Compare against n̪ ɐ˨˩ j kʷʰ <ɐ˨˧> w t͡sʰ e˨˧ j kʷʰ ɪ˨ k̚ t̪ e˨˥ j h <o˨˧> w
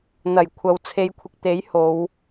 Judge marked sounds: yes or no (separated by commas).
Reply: no, yes